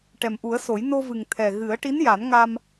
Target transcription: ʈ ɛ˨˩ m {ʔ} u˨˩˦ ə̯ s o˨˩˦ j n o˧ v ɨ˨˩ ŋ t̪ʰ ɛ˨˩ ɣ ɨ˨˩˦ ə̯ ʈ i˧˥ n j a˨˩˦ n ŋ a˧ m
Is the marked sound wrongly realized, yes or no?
no